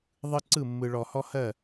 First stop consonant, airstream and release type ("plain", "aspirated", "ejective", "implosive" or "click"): click